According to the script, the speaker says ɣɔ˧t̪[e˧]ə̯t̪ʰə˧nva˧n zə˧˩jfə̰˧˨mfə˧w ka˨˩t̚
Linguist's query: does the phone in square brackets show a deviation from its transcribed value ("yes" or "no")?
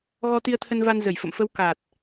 yes